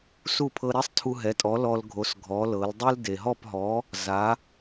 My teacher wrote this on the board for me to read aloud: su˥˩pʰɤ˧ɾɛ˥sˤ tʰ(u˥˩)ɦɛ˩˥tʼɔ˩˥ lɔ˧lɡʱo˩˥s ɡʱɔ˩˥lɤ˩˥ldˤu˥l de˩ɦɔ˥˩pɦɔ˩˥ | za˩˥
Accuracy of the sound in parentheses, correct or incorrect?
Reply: incorrect: u˧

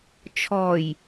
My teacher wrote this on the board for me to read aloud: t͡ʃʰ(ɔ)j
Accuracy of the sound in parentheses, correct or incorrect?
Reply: correct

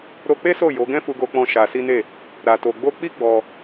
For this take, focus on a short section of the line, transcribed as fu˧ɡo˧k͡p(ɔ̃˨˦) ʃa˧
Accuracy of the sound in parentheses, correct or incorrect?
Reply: incorrect: ɔ̃˧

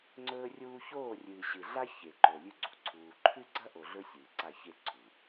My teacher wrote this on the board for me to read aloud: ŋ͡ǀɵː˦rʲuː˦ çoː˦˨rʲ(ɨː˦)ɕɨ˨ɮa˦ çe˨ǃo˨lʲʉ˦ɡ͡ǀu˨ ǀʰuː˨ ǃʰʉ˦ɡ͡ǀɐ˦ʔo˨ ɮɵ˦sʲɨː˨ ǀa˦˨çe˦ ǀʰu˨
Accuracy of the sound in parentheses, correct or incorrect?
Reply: incorrect: ɨː˨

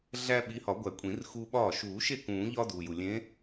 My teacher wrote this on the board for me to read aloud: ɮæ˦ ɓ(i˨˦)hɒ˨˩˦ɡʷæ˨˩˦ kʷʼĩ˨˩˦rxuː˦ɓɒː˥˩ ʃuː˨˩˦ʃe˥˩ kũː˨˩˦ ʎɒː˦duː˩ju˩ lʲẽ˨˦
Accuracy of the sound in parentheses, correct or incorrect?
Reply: correct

